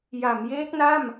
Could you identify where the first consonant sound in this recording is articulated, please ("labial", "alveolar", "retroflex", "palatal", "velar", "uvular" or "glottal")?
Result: palatal